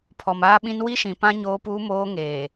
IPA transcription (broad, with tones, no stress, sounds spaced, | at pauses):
pʰ ɔ˨ m aː˦ ɓ ĩ˦ n w i˦ ʃ ĩ˨ p ã˦ ɲ oː˦ p uː˦ m oː˦ ŋ eː˨